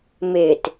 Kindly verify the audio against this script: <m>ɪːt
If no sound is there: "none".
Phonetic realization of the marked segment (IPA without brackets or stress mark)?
m